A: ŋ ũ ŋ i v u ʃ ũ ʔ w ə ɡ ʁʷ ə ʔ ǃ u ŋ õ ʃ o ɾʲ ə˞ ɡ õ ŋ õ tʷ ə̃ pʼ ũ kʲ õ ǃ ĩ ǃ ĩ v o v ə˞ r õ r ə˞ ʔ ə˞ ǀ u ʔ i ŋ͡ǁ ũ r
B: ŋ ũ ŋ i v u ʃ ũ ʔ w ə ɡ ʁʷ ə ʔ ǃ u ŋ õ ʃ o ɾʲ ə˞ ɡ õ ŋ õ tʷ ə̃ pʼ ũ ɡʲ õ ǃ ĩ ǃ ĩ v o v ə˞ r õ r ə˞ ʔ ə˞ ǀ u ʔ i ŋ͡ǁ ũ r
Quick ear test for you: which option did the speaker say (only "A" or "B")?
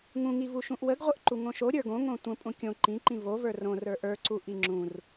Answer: A